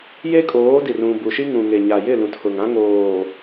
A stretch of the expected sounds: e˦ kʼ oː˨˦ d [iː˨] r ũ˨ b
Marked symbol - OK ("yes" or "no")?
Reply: no